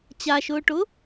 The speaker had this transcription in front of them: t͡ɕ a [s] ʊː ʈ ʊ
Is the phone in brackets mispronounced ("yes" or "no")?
yes